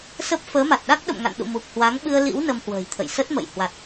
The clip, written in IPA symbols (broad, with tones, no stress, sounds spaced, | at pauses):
s ə˦˥ p̚ f əː˨˦ m a˨˩ t̚ ɗ a˦˥ k̚ ɗ ə̰˧˨ m ŋ a̰˧˨ n ɗ ṵ˧˨ m u˨˩ k̚ h w a˨˦ ŋ ɓ ɨ˧ ə̯ l ḭ˧˥ w n ə˧ m h w ə̤ː˨˩ j t̪ʰ ə̰˧˨ j s ə˦˥ t̚ m ə̰˧˨ j h w a˨˩ t̚